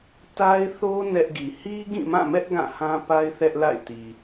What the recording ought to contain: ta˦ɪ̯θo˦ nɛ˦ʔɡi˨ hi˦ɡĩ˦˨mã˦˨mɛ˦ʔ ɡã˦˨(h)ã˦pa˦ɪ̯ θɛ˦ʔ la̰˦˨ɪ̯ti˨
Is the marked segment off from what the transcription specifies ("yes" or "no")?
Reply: no